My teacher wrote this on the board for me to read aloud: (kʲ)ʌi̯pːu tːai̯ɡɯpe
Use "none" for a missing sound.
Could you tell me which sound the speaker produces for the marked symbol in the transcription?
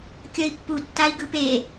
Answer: kʲ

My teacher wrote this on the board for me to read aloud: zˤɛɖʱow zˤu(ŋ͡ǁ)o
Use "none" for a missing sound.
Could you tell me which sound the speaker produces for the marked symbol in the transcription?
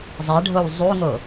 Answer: ŋ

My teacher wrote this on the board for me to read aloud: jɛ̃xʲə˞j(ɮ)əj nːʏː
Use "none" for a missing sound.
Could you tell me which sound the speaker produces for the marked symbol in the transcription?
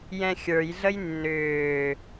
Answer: ɮ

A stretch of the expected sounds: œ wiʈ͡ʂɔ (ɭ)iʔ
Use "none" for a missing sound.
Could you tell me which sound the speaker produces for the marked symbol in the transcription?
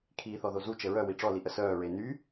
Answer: l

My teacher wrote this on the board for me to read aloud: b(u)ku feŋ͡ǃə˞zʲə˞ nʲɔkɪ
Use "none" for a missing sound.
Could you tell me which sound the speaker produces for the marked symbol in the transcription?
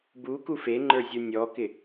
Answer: u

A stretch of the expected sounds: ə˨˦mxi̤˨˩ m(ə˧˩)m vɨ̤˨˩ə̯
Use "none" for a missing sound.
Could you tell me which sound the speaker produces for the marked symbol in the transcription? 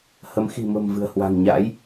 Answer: ə̤˨˩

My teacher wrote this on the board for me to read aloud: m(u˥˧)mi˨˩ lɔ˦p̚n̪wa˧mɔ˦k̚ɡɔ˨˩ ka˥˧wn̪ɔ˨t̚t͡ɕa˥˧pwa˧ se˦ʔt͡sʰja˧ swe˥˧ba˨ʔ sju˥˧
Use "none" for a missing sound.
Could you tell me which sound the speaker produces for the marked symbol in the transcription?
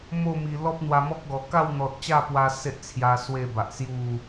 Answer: o˥˧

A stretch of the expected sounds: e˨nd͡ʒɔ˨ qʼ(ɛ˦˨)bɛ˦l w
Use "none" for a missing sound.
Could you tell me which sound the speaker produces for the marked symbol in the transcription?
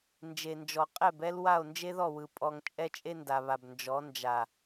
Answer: ɛ˦˨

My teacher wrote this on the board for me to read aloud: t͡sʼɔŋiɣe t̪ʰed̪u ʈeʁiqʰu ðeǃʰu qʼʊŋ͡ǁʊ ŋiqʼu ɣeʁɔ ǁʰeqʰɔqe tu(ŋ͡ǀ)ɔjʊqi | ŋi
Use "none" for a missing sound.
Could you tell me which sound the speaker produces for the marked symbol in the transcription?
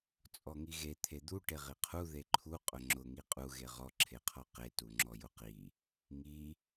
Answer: ŋ͡ǁ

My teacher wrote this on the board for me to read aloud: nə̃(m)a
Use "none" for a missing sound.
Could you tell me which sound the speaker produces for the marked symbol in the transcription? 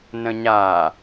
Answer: ɲ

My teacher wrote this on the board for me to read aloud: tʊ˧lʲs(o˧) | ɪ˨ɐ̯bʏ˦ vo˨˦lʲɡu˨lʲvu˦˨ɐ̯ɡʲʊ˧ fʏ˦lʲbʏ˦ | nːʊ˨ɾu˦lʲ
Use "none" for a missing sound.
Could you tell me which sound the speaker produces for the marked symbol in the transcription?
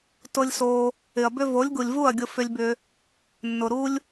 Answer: o˧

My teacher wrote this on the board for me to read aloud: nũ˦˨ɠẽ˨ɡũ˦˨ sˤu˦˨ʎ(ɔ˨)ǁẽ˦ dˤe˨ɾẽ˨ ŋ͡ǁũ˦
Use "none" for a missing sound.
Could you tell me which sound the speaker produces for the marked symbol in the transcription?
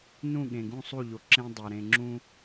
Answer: o˨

